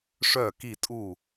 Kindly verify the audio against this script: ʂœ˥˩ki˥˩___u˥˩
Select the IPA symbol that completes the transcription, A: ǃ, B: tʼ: B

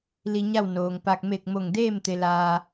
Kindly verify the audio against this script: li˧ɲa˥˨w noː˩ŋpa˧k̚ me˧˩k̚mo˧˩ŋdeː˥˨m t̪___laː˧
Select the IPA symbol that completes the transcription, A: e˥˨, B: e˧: B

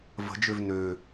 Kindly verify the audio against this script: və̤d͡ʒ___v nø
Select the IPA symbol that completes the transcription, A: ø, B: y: A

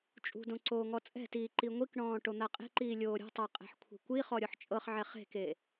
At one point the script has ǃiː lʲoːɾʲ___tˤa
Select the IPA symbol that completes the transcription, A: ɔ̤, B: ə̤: A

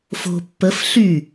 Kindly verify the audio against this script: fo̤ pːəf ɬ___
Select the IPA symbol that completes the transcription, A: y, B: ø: A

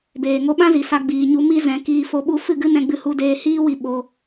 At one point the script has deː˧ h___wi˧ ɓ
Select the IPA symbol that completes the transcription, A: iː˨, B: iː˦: B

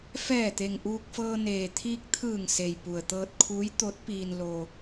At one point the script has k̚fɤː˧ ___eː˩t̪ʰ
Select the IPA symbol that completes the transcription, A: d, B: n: B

